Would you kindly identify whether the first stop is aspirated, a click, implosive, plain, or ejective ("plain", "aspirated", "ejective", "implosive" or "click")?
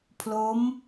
aspirated